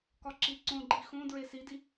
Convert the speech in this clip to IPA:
k ɒ ǁ i ǀ õ ɡ͡ǃ i x õ d ɹ e s i d i

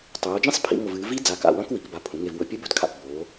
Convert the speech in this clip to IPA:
tˤ oː˩˧ d͡ʒ ĩ˦˥ sˤ pʰ ḭ˩˧ ŋ o˨˩ v ɨː˩˧ v i˦˥ d͡z a˨˩ k a̰˨˩ w ɐ̃˦˥ k w i˩˧ k b a˨˩ pʰ ũ˩˧ ŋ e˨˩ v w ɵ˨˩ pʲ ɨ˦˥ b ɵ˩˧ d kʰ a̰˨˩ p b oː˩˧

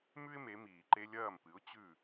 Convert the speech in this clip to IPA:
m ʉ˥ ɪ̯ m e˩˥ m iː˩ ǃ e˥ lʲ ɐː˥˩ m p ɨ˩˥ ʊ̯ t͡ɕ ʉ˥˩

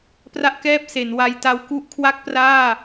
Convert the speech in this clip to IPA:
p r a˥˩ ʔ k ɛː˥˩ p̚ s e˩˦ n w a˦˥ j t a˦˥ w k u˥˩ ʔ kʰ w a˥˩ k̚ p r aː˥˩

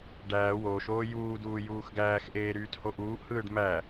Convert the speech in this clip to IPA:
ɖ æː w oː ʃ oː j uː d uː j uː x ɡ æː x ʔ eː ɾ yː t h o ʔ uː ʔ h ɯː ɖ m æ

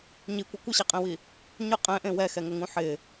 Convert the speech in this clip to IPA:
ɲ i kʷ ɪ kʷ ɪ ɕ ɛ qʼ ẽ w i | ɲ ʊ qʼ ɛ̃ ʔ ẽ w ɛ x ɛ ŋ ʊ ŋ ũ ħ ɪ

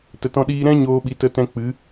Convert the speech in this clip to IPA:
t ə˨ t ɔ̃˧ ɗ iː˧ ɾ ɛ̃˦ ɲ oː˧ ɓ i˨ t ə˧ t ɛ̃˧ k͡p ɨ˨˦

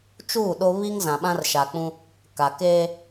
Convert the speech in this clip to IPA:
t͡ʃ uː˦˨ ɗ o˦ β i˦ ŋ z ã˨ ɓ ã˦ r ʃ a˨ k͡p ũ˦ | k a˨ k eː˦

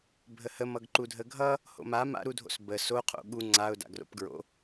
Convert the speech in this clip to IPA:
bʱ ə h ə m ʌ ɡ ǃ u dʱ ə ɡʱ ʌ | h o̰ m a m a̰ ɾ u dʱ o̰ s b ə s o qʰ o̰ ɠ u ŋ͡ǀ a ʊ̯ d a̰ ɡ r o̰ p ɡ ɹ o̰

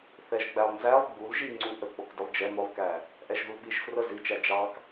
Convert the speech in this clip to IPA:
θ ɛ ʒ ɡ͡b æ lˠ n z æ lˠ ɡ͡b u l ʒ i ŋ͡ǀ u ʔ ə ɡ͡b ɔ k d ə lˠ d͡ʒ ɛ m ʊ lˠ k æ | ʔ ɛ ʒ ð u l ɓ i ʒ f r ə z i t͡ʃ æ d͡ʒ ɑ k

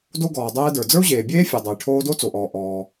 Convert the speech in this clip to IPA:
d o˥ ɡ ɔː˩ dˤ ɛː˥ d ə˞˩ d͡z ə˞˥ u̯ ʑ eː˩ bʲ eː˥ fʲ œ˩ dˤ o˩ j ʈʰ oː˥ d o˥ t͡s o˩ ʔ ɔː˩ ʔ ɔː˩

